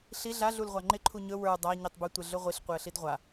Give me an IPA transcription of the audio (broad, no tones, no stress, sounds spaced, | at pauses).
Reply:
ɬ i ɮ a ɮ u l ʁʷ a ŋ͡ǃ ɪ ǃʰ u ɲ ɵ w ə˞ dˤ a ɲ i tˤ b ɵ tʷ ɪ ɮ ɵ ʁʷ i ɬ qʷ ɪ ə̯ ɬ i d ʁʷ a